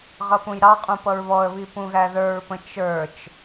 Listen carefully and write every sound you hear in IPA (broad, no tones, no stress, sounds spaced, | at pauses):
ʁ ʌ p ũ j ɾ ɑ qʼ ũ p ʌ ɹ β ɔ ə̯ β i p ũ ɣ æ ð ə˞ ɹ p ə̃ t͡ʃ ə˞ t͡ʃ